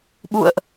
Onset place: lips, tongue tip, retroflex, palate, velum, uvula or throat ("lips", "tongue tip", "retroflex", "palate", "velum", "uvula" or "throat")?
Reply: lips